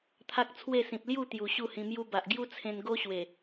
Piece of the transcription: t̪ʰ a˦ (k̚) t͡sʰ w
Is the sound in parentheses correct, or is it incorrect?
correct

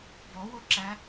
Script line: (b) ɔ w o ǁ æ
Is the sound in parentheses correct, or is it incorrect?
correct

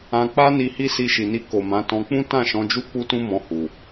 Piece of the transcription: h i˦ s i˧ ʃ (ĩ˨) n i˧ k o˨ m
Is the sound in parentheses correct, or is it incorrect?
incorrect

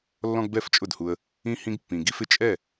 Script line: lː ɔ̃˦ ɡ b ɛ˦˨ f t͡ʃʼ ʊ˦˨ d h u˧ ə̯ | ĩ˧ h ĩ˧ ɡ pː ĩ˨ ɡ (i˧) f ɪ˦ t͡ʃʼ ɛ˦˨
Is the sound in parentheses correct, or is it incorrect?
correct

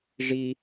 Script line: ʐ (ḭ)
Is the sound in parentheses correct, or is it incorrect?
incorrect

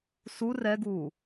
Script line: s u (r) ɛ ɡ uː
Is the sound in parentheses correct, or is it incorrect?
correct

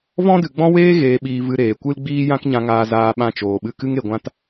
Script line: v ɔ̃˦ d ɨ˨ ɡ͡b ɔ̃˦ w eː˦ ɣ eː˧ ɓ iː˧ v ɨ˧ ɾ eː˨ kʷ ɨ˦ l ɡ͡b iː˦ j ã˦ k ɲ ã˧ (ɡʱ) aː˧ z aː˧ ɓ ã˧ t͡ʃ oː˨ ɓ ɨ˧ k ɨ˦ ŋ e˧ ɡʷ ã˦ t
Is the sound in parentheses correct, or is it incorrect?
incorrect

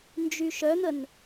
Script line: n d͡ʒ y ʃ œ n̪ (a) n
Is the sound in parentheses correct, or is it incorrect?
incorrect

